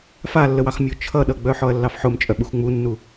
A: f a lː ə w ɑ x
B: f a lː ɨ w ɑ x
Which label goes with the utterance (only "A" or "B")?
A